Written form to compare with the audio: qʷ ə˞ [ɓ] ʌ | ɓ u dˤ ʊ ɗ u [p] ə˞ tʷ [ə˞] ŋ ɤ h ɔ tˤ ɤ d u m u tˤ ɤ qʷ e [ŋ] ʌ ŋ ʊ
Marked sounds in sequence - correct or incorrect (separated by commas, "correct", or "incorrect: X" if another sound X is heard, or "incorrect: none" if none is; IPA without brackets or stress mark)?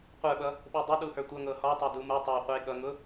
correct, incorrect: h, incorrect: ʌ, incorrect: ɠ